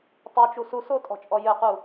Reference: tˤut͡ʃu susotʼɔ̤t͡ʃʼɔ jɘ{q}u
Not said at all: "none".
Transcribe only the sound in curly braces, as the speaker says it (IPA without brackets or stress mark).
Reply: q